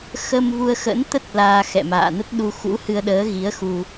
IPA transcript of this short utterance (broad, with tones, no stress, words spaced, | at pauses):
xə˧m vu˧ə̯xə̰˧˥nt̪ə˦˥t̚ laː˧xɛ̰˧˨ma̰ː˧˨nə˦˥t̚ ɗu˧xṵ˧˥hɨ˧ə̯ ɗəː˨˦ɣi˨˦ə̯xu˧